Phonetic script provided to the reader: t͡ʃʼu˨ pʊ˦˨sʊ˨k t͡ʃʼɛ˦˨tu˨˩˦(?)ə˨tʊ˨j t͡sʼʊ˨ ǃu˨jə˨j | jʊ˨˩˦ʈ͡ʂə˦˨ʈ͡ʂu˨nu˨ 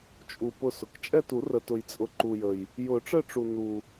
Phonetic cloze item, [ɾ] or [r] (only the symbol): r